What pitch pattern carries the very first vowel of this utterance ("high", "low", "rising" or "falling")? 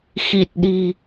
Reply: low